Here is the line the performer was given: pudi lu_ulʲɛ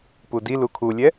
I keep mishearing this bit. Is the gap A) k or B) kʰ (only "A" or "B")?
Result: B